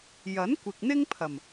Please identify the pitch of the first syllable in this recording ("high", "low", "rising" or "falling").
rising